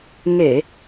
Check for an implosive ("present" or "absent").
absent